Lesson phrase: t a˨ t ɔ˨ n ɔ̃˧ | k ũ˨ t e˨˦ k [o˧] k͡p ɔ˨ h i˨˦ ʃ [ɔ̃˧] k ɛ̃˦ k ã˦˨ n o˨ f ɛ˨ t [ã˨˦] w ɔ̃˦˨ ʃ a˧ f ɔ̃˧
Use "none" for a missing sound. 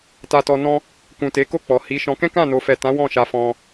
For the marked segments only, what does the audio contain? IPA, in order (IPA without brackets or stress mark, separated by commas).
o˦˨, ɔ̃˧, ã˨˦